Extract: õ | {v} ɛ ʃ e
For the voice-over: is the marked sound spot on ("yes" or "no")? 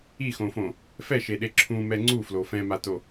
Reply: no